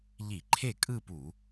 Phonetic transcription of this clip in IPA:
ʎ i˧˩˧ ǃʰ e˥˩ kʼ ɯ˥˧ p u˧˩˧

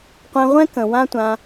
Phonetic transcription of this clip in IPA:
qʷ ɛ̃˧ ʁʷ ɛ̃˦ k ə̃˨ w ã˦ tʷ ã˧

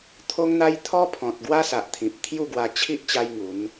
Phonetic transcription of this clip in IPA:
t̪ʰ o˦ ŋ n̪ a˦ j t̪ʰ ɔ˦ pʰ ɔ̃˨ t̚ ɡ w a˦ s a˨ ʔ t̪ʰ ĩ˨ p̚ t̪ʰ j u˥˧ ɡ w a˧ t͡ɕʰ i˦ ʔ t͡ɕ a˦ j ŋ u˨˦ n

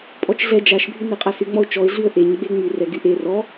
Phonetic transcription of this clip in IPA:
pʼ ɔ t͡ʃ ɮ ɛ d͡ʒ a ʃ bʱ y n ɛ qʼ a s y ŋ͡m ɔ ʊ̯ t͡ʃ ɔ ɪ̯ ɮ y ə̯ ʔ e ɲ ɡ͡b e ŋ͡m y r ɛ ɡ y ʔ e r ɔ

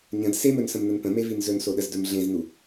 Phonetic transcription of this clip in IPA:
ɲ ə̃ d s e m ɵ n s ə̃ m n ə n p ə̃ m e v i n z ɵ n s o ɗ ə z d ɵ m ɮ ẽ z n u

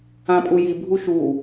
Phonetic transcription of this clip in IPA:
ã pʼ u j i bʱ u ʃ u

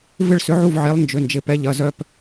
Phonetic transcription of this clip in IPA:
v ɪ˥˩ ɭ s ʏ˨˥ ʕ u˥˩ v ʕ e˨˥ lˠ n d͡ʒ ʏ˩˧˩ n d͡ʒ ɪ˩˧˩ p ɛ˨˥ ʎ ɐ˩˧˩ z œ˥˧ p

